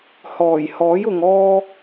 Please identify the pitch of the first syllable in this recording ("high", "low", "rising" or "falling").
low